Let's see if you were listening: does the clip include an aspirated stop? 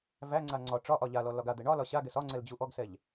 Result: no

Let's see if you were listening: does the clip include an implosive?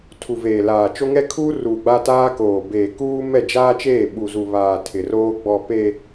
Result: yes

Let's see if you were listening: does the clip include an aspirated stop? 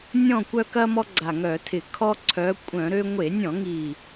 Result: yes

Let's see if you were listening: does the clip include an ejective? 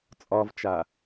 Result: yes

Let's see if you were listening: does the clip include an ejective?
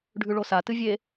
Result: no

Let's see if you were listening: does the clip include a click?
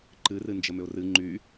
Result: yes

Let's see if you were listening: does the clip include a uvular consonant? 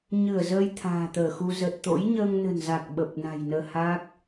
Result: no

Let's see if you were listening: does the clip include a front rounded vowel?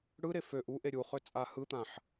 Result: yes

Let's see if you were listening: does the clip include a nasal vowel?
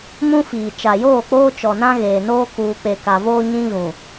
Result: yes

